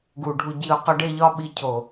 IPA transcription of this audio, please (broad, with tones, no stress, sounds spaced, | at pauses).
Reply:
ɡ u˨ ɖʱ u˧ ɟ i˧ ʊ̯ q ɒ˦ ɖ e˦ ʎ ɒ˦ ɓ i˧ cʰ o˨